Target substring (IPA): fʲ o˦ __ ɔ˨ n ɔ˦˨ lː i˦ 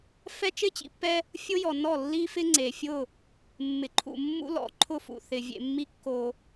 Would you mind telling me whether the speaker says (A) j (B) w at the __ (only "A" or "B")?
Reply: A